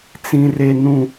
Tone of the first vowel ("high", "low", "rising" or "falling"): high